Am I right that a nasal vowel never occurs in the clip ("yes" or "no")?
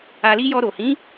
no